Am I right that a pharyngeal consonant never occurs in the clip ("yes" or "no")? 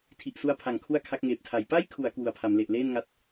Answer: yes